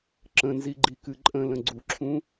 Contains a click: yes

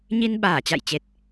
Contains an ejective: no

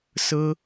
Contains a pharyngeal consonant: no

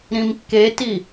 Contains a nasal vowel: yes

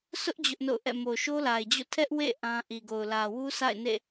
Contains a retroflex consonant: no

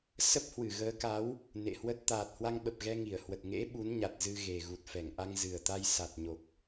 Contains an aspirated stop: no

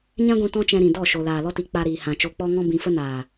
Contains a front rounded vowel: no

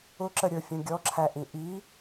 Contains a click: yes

